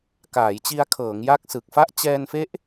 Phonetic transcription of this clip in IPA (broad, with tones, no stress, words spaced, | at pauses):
kaː˩˦jt͡ɕi˧a̯kʰɤː˩˦ŋ ja˦˥k̚sɯ˨˩k̚fa˥˩ʔ t͡ɕɛː˧nfe˦˥ʔ